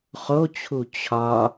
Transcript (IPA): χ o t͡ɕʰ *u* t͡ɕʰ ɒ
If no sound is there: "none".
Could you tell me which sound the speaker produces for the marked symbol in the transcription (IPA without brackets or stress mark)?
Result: u